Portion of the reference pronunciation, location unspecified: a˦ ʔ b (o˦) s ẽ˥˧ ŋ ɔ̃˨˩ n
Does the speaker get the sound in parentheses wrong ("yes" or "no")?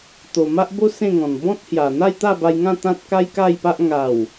no